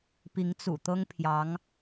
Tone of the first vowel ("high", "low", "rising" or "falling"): rising